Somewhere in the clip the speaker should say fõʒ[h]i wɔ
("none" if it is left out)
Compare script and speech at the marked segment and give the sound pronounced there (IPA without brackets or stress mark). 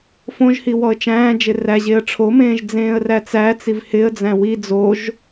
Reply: h